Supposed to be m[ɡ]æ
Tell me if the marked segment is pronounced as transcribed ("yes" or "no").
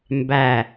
no